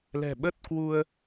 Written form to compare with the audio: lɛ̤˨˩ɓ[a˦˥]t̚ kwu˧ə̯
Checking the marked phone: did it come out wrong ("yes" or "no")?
yes